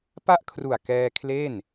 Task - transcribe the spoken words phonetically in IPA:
p a˥˩ ʔ kʰ r u˨˩ a̯ k ɛː˧ kʰ l e˥˩ n

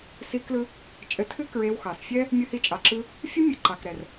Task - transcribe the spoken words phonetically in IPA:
s i˦ k l ɯ˦ | t͡ʃʼ ɘ˧ tʰ ɨ˦ k ɹ e˧ w x ɑ˨ s fʲ ɛ˦ | mʲ ɯ˧ h i˧ t͡ʃʼ ɑ˨ ǁ ɯ˧ | fʲ ɯ˦ mʲ ɘ˧ ǃ ɑ˨ k ɾ ɛ˨ r

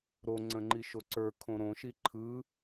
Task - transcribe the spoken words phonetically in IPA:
ɾ o ŋ͡ǀ ə̃ ŋ͡ǃ i ʃ o ǀ ə˞ kʰ õ ɾ õ ʃ i ǃʰ ɯ

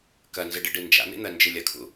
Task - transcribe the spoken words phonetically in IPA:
k ɐ n z ɨ ɖ ɨ ɖ ɨ n d͡ʒ a̰ n̪ ḭ n̪ ɜ n d͡ʒ ɨ lʲ ɐ kʰ ṵ

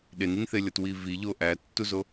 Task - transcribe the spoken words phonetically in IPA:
ɗ e n i n θ e lʲ ɒ t w i v i ʎ o ʔ æ tː u z o

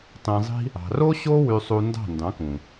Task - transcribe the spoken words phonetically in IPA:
tˤ ĩ˧ zˤ i̤˦ | ɑ̤˨ r o˦ ɕ o˦ w y˧ sˤ u˧ n d ɑ̤˦˨ n d ɑ̃˨˦ k ũ˨

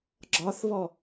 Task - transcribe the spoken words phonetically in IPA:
ɡ͡ǁ ɒ θ β ɔ

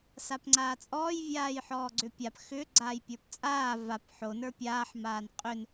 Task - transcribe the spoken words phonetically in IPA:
s a p ŋ͡ǀ aː t͡sʼ ɔː j vʲ aː j ħ ɔː ɡ͡ǀ ʏ pʲ a p x ʏ ɡ͡ǀ aː j pʲ ə˞ p t͡sʼ aː v a p ħ o n ə˞ pʲ aː ħ m aː n qʼ ʏ n

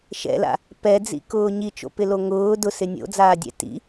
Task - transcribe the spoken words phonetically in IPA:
ʃ ɛ̰ l a̰ | p ɛ d͡z ḭ k ʊː ɲ i t͡ʃ o̰ p ɪ l o ŋ ʊː d ʊ s ɪ nʲ o̰ d͡z aː dʲ ɛ̰ t ḭ

